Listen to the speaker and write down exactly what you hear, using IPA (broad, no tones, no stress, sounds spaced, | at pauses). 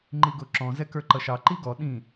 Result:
ŋ͡ǃ i ɡ ʊ ǁ ɔ̃ z ɛ k ə˞ ǃ ʌ ʃ ɑ ǃ i ɡ ɔ ɗ ĩ